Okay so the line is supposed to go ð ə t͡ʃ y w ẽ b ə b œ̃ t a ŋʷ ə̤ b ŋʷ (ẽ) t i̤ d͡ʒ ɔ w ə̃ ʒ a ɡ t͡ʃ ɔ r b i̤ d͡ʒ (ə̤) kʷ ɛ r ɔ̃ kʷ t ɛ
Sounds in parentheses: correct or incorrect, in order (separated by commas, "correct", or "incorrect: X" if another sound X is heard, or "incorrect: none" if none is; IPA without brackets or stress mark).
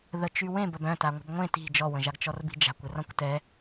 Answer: correct, incorrect: a̤